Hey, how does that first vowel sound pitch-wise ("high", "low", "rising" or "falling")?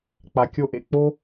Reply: low